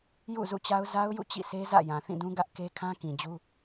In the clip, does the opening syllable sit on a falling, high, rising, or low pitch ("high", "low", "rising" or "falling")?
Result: falling